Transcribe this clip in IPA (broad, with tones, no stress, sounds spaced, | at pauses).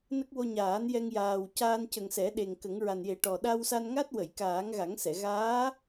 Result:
n ə˦˥ k̚ w o˧ ɲ aː˨˩˦ n j ɛ˧ ŋ j aː˨˩ w c aː˧ n c ə˨˩ ŋ s ɛ˨˩˦ ɗ e˨˩ ŋ k ə˨˩˦ ŋ ɹ a˨˩ n j e˨˩˦ ʈ ɔ˨˩ ɗ a˧ w s a˧ n ŋ a˦˥ t̚ w ə˨˩˨ j k aː˨˩˦ ŋ ɣ a˨˩˦ ŋ s ɛ˨˩˨ ɣ aː˧˥